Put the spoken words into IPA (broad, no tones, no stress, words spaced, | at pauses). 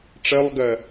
ʈ͡ʂɜlˠɡɜ